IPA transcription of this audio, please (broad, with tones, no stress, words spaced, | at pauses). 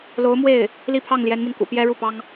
lo˧˥ʊ̯mwe˥˩ɪ̯ | li˥˧pʰɑ˥˩ŋljɛ˧˥nmi˧n kṵ˨˩pjɛ˥ɻu˥˩pɑ˥ŋ